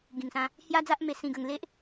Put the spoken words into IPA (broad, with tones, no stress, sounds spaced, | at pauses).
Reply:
ɡ ĩ˨˩ ŋ s ã˧ | h j a˦ d͡z a˦ ʔ m e˧ s ĩ˧ ɡ ə˧ ŋ l e˦ ʔ